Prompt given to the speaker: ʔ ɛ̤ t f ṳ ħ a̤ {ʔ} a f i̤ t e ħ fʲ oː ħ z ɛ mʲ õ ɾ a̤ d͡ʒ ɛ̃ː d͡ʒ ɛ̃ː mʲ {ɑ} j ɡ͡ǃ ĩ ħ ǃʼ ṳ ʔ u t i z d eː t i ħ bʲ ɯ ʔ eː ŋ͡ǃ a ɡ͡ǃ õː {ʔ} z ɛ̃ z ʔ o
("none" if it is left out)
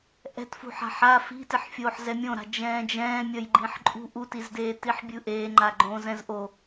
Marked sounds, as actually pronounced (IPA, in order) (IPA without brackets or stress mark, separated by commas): ħ, ʌ, none